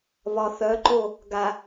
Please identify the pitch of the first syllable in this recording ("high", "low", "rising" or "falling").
low